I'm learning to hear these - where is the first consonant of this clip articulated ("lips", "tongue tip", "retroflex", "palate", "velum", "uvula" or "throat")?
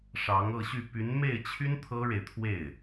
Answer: retroflex